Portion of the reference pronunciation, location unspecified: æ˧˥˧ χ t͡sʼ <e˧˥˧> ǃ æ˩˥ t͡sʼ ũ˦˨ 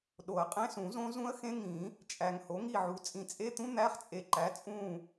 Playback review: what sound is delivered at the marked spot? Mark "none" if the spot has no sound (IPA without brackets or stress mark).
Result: e˨